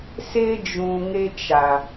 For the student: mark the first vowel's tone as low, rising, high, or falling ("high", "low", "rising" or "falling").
high